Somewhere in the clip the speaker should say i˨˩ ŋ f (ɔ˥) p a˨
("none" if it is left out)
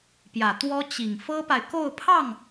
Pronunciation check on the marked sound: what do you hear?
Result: ɤ˥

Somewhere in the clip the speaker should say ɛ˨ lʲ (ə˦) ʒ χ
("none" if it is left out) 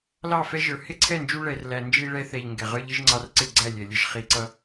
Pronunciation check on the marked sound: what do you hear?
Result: ə˦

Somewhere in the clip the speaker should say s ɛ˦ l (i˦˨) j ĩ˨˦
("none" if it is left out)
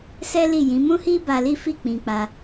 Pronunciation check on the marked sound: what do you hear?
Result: i˦˨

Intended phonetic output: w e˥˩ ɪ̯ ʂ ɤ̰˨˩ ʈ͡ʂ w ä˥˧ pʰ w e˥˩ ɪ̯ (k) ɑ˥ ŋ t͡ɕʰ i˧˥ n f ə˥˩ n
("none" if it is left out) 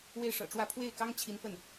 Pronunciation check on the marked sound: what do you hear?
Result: k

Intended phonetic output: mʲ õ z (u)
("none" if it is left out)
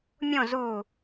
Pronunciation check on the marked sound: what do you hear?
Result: u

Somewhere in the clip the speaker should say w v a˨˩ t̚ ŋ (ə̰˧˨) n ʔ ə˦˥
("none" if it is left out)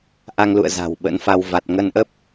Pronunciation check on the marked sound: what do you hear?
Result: ə˧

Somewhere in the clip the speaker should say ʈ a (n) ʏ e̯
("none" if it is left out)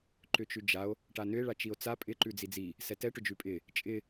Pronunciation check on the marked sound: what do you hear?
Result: n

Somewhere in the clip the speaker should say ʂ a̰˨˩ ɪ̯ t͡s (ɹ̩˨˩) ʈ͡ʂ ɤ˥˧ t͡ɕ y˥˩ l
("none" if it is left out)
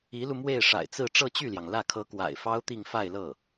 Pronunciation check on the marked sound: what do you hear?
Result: ɹ̩˥˧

